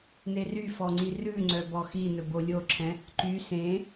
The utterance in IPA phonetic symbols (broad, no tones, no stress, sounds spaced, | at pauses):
n e r y f ɔ ŋ͡ǀ i r ʉ ŋ͡ǀ œ b ɔ x i n ɵ b o lʲ o ǁʰ ɛ̃ | ǃ y s ẽ